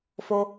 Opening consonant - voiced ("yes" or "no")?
no